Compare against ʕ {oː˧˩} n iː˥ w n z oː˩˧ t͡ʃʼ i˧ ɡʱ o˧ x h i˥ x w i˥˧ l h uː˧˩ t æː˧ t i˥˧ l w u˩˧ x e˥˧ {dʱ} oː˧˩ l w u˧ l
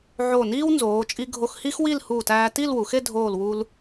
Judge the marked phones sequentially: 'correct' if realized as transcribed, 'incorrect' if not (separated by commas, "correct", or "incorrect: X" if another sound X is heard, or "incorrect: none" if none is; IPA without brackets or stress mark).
incorrect: o˧˩, correct